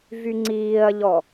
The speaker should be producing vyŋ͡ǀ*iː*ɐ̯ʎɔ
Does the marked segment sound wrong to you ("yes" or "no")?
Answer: no